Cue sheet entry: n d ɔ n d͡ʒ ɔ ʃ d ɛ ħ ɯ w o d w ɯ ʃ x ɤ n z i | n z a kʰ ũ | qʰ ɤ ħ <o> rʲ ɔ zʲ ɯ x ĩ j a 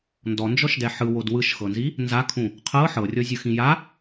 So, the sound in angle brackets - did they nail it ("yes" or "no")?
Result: no